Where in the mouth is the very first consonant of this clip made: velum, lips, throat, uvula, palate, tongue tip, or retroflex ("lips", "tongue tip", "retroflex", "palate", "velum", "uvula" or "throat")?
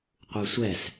uvula